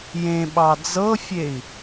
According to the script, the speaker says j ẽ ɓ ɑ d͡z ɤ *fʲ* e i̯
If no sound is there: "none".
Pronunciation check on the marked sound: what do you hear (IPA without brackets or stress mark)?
fʲ